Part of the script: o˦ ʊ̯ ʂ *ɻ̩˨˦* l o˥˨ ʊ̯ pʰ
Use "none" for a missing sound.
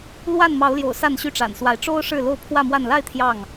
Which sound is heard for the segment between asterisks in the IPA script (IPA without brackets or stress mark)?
ɻ̩˥˨